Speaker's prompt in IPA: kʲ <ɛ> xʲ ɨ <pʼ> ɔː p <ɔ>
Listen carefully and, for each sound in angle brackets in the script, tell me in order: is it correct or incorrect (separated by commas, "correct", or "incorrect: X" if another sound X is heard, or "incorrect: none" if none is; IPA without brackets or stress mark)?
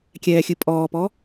incorrect: ɛː, correct, correct